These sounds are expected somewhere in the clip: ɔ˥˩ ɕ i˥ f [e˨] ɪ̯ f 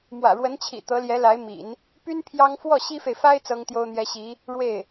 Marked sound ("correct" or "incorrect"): correct